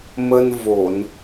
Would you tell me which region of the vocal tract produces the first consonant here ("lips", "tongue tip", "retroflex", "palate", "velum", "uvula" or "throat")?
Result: lips